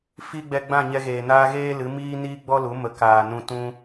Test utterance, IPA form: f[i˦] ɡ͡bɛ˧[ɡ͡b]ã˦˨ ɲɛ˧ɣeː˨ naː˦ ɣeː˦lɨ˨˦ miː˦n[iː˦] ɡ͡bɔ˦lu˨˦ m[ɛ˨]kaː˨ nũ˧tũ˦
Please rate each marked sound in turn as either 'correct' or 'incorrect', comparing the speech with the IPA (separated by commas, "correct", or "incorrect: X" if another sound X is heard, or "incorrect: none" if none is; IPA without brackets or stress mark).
correct, correct, correct, incorrect: ə˨